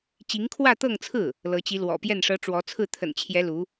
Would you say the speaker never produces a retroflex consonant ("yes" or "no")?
no